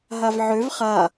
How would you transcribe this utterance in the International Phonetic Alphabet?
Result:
ɦ a v ʕ ø v χ a

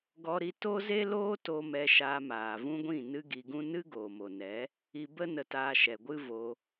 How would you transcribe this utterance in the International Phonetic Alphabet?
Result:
ɡ ɔ˧ ɾ i˧ t o˦ z e˦ l oː˦ t o˧ m ɛ˧ ʃ aː˧ m aː˨ v ũ˦ ɡʷ ĩ˦˨ n ɨ˦ ɡ i˧ ɡ ũ˦ n ɨ˦ ɡ oː˨ m o˨ n ɛ˨˦ | i˧ b ə˦ n ə˧ t aː˧ ʃ ɛ˨ ɡʷ ɨ˦ v o˧

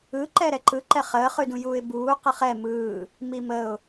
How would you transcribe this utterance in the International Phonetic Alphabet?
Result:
ɯ ǃ ɛ ɾ ɛ ǃ ɯ ǃ ɛ χ əː χ ʉ d ũ j uː ɪ̯ b uː q ə χ ɛ m ɯː | m i m ə ʊ̯

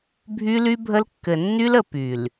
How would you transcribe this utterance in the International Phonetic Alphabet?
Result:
bʱ y˦ l y˦ bʱ ə˦ l kː ɘ˨ nː y˦ l ə˨ p y˨ l

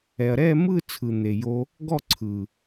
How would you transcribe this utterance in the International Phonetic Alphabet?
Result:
ɛ˨ ɐ̯ ɾ ɛ˦˨ m ɯ˦˨ t͡sʰ ɯ˨ n̪ e˨ j o˧ | ɡ ɔ˦˨ ǀʰ ɯ˨

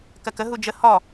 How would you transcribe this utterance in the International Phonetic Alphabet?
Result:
k ɜ k ə ɦ u d͡ʒ ə h ɔ

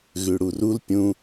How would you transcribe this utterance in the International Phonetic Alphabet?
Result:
ɣ ʉ ɽ u r u l pʲ ũ

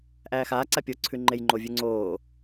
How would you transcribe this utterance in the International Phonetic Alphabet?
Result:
ʔ æː x aː ǀ a pʲ o ǀʰ ʉ ŋ͡ǃ e j ŋ͡ǃ o vʲ ʉ ŋ͡ǀ oː

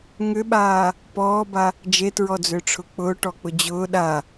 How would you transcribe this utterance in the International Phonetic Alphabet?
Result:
ŋ ʏ ɓ aː | p ɔː b a | d͡ʒ e t ɹ ɔ d͡z ʏː ʈ͡ʂʰ ʊ k͡p ʊː ʈ ɔ k͡p ʊ d͡ʑ ʊː ɗ a

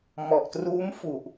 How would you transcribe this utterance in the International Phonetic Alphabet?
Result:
m ɔ˨˩ ʔ t r uː˦˥ m f u˨˩ ʔ

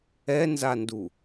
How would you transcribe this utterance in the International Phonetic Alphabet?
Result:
ɛ n z a n d u

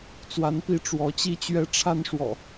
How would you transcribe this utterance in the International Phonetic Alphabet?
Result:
t͡s w a˨˦ n p i˨˦ ʈ͡ʂ w ɔ˨˦ t͡ɕ i˦ t͡ɕ ɥ ɛ˦ ʈ͡ʂʰ a˦ n ʂ w ɔ̰˨˩

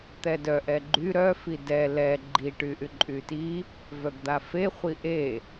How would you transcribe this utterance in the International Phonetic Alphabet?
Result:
t̪ ɛ d œ ʔ ɛ ɡ͡ǃ y ɾ œ f i d ɛ l ɛ ɡ͡ǃ i ʈ y ʔ y ǃʼ y t i | v œ ɡ d̪ a f e χʷ i ʔ e

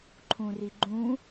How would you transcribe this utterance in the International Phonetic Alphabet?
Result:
ǃʰ ũ r i ɡ͡ǃ ũ

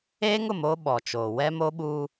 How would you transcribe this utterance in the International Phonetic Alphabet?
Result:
eː˦ ŋ ʊ˨ m o˦ ɓ ɔ˨ t͡ʃ oː˨ w ɛ˦ m o˦ ɓ uː˦

